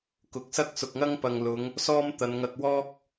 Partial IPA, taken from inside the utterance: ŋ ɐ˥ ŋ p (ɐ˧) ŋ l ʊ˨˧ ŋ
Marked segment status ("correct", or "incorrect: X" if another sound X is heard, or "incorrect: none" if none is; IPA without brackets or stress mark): incorrect: ɐ˨